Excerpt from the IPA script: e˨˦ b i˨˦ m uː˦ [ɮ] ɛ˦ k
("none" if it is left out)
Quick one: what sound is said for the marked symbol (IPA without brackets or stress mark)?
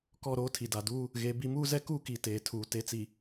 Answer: z